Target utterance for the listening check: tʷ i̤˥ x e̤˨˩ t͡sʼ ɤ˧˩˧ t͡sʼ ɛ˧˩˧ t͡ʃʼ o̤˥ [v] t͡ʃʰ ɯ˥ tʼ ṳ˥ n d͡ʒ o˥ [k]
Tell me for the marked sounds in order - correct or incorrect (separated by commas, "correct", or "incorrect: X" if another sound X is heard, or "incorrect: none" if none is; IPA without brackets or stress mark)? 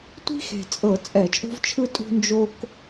correct, correct